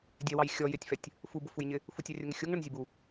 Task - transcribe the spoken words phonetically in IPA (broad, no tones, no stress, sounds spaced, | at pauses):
dʲ ɛ w ɑ j xʲ ɔ j ɪ tʲ f ɛ tʲ | f u b ʊ f u j ɲ ɪ | f u tʲ ɑ rʲ ʊ ŋ ɪ xʲ u ŋ ɳ ʊ n zʲ ɛ b u